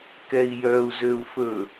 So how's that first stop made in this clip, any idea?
plain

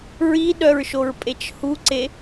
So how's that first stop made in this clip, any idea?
implosive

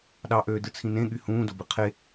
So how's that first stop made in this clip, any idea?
implosive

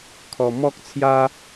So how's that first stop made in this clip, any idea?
aspirated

